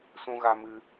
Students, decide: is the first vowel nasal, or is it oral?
nasal